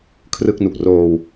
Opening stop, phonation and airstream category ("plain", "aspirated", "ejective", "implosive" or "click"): aspirated